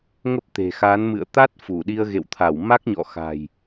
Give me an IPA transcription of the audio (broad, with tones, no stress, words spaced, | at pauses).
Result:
ŋə˦˥p̚t̪e̤˨˩xa˨˦n mɨ̰˧˨ə̯t̪a˦˥t̚ fu˧˩ɗi˧ə̯ɣḛ˧˨wt̪ʰa˧˩w ma˦˥k̚ɲɔ̰˧˨ xa̤˨˩j